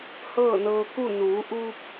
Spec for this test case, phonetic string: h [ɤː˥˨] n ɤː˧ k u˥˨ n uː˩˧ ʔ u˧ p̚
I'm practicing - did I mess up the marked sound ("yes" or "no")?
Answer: no